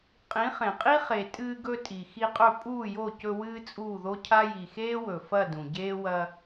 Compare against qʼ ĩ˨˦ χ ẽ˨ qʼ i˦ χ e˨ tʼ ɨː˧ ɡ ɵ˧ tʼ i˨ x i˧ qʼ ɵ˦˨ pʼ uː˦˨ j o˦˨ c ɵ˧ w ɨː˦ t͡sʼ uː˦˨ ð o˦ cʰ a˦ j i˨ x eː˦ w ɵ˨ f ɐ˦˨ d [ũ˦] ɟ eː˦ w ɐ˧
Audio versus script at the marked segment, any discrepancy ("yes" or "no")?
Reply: yes